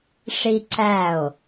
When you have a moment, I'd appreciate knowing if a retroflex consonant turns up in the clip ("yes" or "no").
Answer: yes